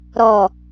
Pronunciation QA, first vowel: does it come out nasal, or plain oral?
oral